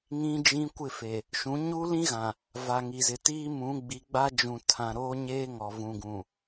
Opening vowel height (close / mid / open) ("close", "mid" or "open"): close